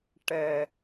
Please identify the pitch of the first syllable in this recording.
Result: high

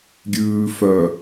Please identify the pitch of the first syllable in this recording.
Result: low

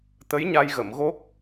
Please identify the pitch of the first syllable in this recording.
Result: rising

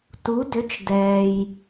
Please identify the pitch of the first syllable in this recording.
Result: rising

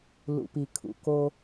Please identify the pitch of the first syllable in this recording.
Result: low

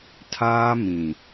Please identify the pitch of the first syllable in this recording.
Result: high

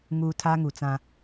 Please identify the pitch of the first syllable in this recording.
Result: low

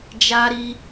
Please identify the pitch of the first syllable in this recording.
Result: high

